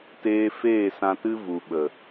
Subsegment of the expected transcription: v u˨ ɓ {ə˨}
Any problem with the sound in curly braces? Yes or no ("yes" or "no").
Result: no